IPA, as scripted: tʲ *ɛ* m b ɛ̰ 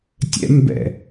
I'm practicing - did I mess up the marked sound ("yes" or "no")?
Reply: yes